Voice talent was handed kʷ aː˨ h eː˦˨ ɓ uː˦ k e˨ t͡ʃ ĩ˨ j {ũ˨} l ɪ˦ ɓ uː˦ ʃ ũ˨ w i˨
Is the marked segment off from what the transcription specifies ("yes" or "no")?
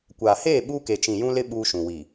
yes